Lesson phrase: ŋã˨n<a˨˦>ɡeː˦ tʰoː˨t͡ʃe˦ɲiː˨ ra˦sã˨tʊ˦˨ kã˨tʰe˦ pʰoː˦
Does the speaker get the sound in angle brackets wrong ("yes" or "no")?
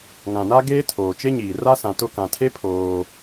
yes